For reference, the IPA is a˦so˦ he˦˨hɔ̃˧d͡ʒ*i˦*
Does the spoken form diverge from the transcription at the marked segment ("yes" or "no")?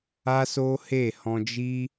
no